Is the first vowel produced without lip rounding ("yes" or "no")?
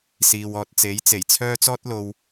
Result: yes